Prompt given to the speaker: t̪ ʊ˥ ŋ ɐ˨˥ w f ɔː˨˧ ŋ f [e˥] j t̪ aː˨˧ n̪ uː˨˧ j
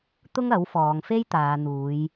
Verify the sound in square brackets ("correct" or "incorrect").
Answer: correct